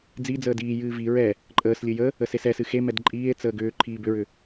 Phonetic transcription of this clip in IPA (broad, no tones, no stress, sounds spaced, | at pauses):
d͡z i d͡z əː d iː j ɨː v i ɹ ɛ | ǃʼ əː s lʲ ɨ j ə | ə s e s ɛ s ɨ x e m ɛ d ǃʼ iː e̯ t͡s əː ɡ ʏː ǃʰ iː b ʏ ɹ ʏ